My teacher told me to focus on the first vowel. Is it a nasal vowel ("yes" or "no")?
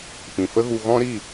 yes